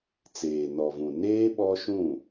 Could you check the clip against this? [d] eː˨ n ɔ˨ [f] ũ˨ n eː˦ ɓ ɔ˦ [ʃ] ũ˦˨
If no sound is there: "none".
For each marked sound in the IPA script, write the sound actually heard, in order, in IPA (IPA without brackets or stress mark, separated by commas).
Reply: t͡s, v, ʃ